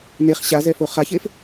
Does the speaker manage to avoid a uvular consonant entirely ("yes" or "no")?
no